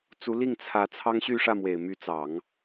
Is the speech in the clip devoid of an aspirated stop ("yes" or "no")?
no